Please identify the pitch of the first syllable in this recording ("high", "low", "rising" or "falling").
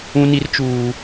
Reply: high